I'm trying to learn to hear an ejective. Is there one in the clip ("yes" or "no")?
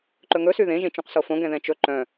no